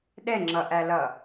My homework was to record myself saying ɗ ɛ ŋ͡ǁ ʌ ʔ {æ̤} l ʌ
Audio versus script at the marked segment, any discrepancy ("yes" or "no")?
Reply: yes